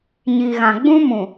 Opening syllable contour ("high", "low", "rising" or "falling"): low